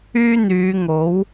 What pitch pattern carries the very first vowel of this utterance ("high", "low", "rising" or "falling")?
high